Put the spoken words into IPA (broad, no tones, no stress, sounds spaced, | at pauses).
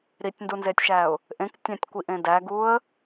ɾ i tʲ n d u n z e tʲ ʃ æ ʊ̯ | ʔ ẽ k tʲ æ̃ tʲ kʷ i ʔ ẽ d æ ɡ u ə̯